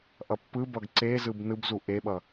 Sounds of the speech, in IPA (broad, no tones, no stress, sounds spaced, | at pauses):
ʔ ʌ pː ɯ b ʌ ɡ ǀ e z ɯ b n ɯ b z u ʔ e ɓ ʌ